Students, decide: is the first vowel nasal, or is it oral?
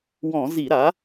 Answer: nasal